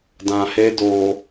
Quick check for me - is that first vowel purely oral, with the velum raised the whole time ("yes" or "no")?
no